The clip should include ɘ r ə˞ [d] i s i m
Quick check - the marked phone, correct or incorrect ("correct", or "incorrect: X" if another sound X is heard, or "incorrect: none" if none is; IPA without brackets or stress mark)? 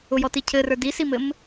correct